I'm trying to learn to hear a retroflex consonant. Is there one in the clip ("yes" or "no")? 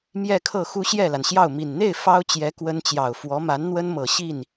no